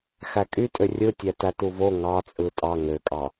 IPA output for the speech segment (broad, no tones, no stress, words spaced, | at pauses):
xækʼytʼø rʲɯtʲæ tætuvo ŋɑt͡sʼɯ tʼɑ ŋøkʼɑ